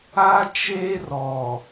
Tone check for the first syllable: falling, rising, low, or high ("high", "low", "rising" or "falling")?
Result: high